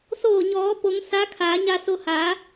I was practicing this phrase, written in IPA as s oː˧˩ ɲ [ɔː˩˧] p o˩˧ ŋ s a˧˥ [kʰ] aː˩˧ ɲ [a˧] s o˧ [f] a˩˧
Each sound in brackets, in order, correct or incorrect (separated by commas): correct, correct, correct, incorrect